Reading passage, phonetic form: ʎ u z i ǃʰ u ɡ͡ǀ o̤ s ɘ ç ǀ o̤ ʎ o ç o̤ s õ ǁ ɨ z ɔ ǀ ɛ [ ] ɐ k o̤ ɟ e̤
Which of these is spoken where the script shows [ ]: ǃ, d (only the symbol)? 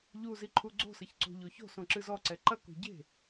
ǃ